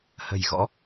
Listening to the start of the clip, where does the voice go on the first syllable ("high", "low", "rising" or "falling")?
low